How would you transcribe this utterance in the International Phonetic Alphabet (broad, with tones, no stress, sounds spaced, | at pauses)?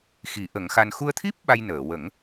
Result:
x i˨˩˦ ʔ ə˨˩˦ ŋ x a˧ n x u˧ ə̯ t̪ʰ i˦˥ p̚ ɓ a˧ j n əː˨˩˨ w ə˨˩˦ ŋ